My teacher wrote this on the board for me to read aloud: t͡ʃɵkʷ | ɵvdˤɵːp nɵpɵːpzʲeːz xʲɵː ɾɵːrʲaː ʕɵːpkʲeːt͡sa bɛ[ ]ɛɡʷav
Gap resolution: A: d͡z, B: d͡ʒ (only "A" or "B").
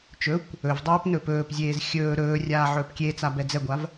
A